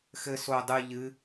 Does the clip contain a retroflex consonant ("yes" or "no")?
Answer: no